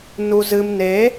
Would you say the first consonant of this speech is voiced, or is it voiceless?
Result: voiced